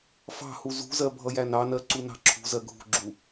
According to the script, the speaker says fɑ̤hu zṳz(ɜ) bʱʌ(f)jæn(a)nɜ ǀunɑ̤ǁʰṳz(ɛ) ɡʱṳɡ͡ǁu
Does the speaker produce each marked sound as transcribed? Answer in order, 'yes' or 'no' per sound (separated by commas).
yes, no, no, no